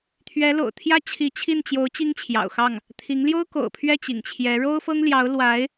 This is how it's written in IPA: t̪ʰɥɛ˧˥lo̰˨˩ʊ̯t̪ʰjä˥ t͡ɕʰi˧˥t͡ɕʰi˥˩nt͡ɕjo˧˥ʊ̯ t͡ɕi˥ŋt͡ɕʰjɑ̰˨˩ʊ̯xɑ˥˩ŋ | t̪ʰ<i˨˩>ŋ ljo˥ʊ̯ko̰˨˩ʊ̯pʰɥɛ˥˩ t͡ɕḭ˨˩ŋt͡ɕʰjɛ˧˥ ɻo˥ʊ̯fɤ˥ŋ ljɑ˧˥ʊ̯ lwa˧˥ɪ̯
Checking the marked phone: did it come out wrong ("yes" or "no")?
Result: yes